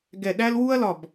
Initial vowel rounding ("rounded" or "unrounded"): unrounded